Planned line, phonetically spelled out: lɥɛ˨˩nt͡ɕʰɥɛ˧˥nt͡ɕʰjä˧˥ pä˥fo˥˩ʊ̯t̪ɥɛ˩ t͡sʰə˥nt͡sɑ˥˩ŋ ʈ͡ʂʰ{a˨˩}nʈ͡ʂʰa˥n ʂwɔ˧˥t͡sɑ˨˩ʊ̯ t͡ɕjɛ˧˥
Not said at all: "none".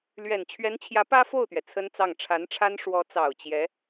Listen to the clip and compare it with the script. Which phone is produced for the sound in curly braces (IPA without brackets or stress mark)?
a˧˥